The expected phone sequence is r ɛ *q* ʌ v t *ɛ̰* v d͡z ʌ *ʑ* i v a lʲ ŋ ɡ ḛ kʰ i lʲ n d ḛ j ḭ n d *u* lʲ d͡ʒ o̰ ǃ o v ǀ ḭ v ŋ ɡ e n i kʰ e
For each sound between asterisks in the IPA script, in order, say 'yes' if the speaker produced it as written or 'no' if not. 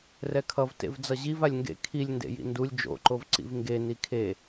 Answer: no, no, yes, yes

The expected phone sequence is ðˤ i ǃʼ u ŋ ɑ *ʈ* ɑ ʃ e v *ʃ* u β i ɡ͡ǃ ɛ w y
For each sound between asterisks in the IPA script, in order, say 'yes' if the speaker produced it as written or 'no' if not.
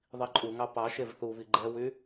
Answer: no, no

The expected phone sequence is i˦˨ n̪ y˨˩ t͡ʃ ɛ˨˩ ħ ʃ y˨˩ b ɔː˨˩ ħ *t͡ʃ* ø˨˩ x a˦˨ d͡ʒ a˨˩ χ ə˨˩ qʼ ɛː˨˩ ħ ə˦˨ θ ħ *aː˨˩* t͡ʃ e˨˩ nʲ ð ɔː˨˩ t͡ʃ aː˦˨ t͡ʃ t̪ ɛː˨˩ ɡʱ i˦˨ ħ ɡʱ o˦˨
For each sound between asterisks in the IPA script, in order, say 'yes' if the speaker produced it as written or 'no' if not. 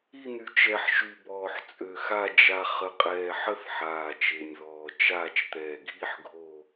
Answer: no, yes

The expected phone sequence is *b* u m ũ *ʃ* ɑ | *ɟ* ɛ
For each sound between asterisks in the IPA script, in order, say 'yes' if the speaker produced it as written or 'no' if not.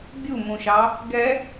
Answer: no, yes, no

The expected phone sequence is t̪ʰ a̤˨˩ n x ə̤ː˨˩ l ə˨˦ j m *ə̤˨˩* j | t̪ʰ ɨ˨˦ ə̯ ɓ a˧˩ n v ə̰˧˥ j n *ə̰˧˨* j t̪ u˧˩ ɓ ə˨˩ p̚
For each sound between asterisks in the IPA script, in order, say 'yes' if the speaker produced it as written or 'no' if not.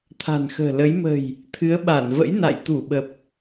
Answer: yes, no

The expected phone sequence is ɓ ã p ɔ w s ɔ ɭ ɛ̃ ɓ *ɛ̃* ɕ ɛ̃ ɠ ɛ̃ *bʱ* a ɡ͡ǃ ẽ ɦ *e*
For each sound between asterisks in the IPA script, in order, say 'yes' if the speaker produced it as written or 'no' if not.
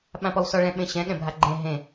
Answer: no, yes, no

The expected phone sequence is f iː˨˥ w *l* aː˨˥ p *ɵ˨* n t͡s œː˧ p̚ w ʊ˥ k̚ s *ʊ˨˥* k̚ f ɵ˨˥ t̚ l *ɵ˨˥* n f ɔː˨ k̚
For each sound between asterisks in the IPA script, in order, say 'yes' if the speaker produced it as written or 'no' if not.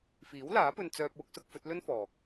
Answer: yes, no, yes, no

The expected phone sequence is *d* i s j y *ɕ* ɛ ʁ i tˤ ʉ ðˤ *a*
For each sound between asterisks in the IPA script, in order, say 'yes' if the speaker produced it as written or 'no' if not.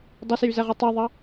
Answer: no, no, no

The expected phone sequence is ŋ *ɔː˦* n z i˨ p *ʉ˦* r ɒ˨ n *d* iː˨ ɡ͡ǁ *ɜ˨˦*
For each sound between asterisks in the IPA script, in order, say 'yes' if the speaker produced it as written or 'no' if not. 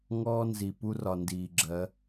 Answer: yes, no, yes, yes

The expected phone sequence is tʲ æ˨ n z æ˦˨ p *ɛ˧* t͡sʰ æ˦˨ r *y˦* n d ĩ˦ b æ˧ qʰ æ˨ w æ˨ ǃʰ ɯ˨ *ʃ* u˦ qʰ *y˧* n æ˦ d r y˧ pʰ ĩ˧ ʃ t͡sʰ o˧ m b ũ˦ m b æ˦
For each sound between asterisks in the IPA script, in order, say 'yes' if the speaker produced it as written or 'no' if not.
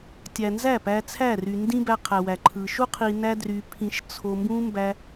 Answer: no, no, yes, no

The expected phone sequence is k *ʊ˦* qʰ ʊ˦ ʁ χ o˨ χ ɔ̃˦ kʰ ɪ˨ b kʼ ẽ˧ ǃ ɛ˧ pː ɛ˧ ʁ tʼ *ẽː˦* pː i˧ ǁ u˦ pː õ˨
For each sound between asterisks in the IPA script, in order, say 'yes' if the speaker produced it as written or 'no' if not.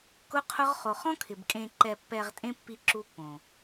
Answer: yes, no

